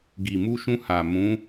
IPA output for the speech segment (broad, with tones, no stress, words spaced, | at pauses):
ɡi˨mu˧ʃũ˧ ha˨ mũ˨˦